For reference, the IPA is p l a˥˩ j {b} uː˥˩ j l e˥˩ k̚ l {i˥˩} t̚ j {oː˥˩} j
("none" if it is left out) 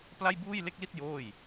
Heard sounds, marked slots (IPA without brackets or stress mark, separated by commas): b, i˥˩, oː˥˩